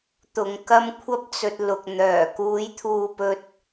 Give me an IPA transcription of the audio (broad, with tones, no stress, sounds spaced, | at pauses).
t̪ ʊ˨ ŋ k ɐ˧ m kʷʰ ɐ˧ p̚ t͡s ɵ˨ t̚ l ʊ˨ k̚ n̪ œː˨˩ k uː˨˧ j t̪ʰ uː˨ p ɵ˨ t̚